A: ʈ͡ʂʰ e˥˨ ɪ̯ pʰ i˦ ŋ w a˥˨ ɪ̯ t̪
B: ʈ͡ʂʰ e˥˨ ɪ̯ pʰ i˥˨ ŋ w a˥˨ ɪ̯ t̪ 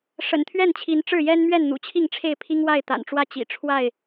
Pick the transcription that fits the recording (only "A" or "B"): A